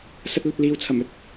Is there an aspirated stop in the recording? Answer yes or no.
yes